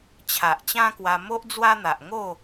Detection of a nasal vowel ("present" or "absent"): present